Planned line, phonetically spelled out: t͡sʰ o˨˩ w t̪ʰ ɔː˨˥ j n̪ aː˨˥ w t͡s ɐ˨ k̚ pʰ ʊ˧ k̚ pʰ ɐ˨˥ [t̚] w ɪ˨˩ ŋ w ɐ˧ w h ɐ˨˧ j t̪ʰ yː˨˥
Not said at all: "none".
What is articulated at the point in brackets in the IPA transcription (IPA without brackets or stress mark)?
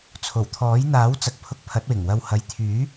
t̚